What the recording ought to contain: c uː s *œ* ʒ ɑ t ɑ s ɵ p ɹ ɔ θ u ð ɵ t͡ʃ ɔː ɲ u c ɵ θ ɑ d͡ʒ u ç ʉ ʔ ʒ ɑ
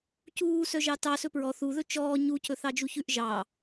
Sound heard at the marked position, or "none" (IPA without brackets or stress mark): œ